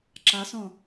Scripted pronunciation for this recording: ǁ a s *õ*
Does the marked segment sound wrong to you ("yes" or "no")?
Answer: no